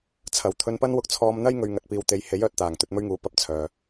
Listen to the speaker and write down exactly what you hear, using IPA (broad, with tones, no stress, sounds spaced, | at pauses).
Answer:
t͡sʰ ɐ˨˩ w t̪ʰ ɵ˧ n p ɐ˥ n w ʊ˧ k̚ t͡sʰ ɔː˧ m n̪ ɐ˥ j ŋ ɵ˨ ɥ ŋ ɐ˨ t̚ p iː˨ w t̪ e˨˧ j h e˨˥ j œː˨ t̚ t̪ aː˨˩ ŋ t̪ ɵ˧ t̚ m ɵ˥ ɥ ŋ uː˨˥ p ɐ˨ p̚ t͡sʰ œː˨